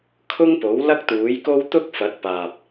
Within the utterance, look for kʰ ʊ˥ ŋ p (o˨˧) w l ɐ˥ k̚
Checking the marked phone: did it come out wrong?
yes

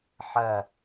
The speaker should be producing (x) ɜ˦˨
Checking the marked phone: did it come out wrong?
yes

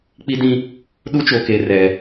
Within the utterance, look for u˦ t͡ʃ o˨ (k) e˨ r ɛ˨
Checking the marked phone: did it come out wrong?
no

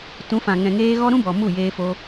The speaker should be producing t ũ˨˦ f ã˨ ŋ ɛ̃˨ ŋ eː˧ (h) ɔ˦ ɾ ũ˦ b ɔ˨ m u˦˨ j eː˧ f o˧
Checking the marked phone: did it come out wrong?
yes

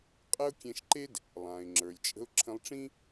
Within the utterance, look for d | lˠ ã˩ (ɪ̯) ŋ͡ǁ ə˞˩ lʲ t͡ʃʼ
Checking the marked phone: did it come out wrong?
no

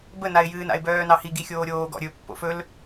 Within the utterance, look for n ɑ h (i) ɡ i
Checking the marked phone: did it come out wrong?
no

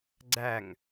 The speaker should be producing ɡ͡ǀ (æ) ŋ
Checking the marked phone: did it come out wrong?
no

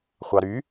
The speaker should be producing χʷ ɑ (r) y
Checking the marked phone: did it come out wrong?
yes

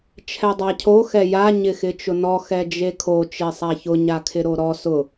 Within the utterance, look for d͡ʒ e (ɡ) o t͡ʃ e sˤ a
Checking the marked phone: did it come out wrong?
yes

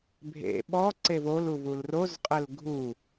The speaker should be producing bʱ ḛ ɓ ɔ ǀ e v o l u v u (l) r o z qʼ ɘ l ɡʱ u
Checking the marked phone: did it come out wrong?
no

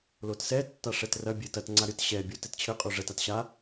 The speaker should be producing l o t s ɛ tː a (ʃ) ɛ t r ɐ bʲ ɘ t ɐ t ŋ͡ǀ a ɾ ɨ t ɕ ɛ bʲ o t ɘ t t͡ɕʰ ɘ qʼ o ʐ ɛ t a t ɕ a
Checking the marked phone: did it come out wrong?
yes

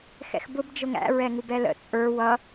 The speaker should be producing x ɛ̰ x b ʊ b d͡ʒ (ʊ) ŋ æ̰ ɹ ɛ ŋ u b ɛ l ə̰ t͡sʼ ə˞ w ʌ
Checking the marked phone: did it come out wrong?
no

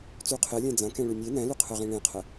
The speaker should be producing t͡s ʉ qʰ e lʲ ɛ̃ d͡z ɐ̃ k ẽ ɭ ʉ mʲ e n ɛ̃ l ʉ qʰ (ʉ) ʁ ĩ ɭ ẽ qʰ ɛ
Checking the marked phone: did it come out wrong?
yes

